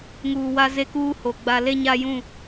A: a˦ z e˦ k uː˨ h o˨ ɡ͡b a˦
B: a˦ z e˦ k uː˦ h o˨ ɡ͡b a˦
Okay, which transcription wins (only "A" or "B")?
B